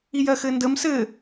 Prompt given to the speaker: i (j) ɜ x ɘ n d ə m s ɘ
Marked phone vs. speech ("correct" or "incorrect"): correct